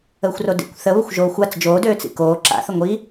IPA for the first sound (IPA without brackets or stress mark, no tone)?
əː